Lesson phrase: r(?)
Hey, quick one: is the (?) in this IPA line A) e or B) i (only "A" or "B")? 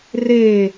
A